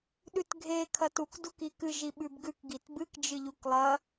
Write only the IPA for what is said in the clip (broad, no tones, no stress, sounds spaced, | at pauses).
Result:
ɗ ʉ t ɡʱ e kʰ ɐ t u k d u k i k ɨ ʒ i ɓ ʉ b ɡ ʉ k ɡ i t b ɨ k d͡ʒ ɨ ʎ u k lˠ ɐ